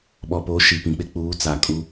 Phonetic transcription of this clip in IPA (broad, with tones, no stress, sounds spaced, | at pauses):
ɓ ɔ˨ p o˨˦ ʃ i˨ p ĩ˨ k͡p ɪ˦ k͡p uː˨˦ t͡s a˨ kʼ u˦